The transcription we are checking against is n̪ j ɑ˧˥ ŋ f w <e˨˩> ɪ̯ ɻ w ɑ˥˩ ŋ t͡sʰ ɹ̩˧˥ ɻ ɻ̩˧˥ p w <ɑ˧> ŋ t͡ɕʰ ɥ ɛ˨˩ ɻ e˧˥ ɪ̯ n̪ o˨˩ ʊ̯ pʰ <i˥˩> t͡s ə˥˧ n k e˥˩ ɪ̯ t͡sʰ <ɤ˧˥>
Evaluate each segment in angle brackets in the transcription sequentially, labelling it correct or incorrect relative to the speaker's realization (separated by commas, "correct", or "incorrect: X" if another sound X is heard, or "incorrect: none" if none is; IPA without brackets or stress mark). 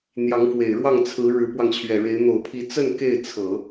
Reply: correct, correct, incorrect: i˧˥, incorrect: ɤ˨˩˦